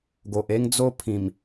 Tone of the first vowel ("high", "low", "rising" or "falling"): low